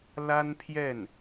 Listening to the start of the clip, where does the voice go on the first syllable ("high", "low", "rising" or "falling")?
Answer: high